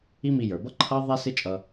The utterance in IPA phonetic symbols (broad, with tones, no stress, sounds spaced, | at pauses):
i˦ m i˧ j ə˞˨ b ʌ˦ ǃʰ ʌ˦ ðˤ æ˦ s ɪ˦ t͡ʃʼ ʌ˧